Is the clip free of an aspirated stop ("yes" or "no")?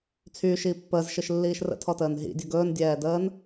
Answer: no